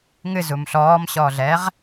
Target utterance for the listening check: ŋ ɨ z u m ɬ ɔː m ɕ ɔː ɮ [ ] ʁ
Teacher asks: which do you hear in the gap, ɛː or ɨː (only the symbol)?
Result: ɛː